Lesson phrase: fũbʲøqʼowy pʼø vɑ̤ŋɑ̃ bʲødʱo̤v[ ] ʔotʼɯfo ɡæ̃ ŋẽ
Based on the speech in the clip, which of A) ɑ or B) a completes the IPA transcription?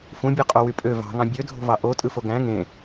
A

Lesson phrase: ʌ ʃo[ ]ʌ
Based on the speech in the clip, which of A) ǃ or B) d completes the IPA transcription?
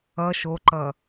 A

